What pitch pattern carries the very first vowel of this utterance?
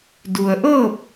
low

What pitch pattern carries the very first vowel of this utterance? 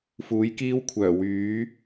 rising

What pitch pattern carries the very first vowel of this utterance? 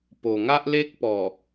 low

